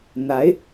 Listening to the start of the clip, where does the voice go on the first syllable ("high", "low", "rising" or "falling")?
rising